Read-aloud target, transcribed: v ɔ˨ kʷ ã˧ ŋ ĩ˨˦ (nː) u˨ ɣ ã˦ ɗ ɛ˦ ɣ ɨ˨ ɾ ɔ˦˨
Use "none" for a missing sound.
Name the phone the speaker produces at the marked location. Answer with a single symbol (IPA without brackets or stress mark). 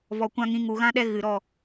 ŋ